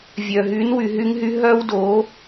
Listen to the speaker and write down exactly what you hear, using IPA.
vʲœ˨ ɦy˨˦nwy˨ɦy˧ŋɦy˧ ɦœ˦wdo˨˦

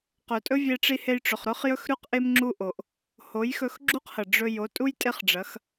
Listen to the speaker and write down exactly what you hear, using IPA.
qɵ˨tʼɵ˦vʲe˧ʈ͡ʂi˧ he˧jʈ͡ʂɵ˨χɾɵ˦χ jɵ˦xɾʉ˦q ʔe˦mŋ͡ǁu˦ʔo˨ʔ | ho˨˦jxɵ˧xɡ͡ǁu˦qhɐ˨ ɖ͡ʐɵ˧ jo˨˦tʼu˦j tʼe˦χɖ͡ʐɐ˨˦x

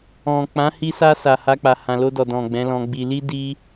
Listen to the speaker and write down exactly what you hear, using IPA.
ɔ̃˨ k͡pã˨˦hi˧sa˧ sa˨ha˧k͡pa˨ hã˨lo˧dɔ˨ dɔ̃˨ɡ͡bɛ̃˨˦lɔ̃˧ɡ͡bi˧ li˦ di˧

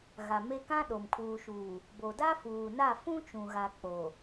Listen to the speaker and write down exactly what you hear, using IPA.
ɣa˨me˦ kã˦ ɗo˨mkʰuː˨ʃuː˨ | bo˨da˦fuː˨ na˦˨ fũ˦t͡ʃũ˨ɣa˨ k͡po˨

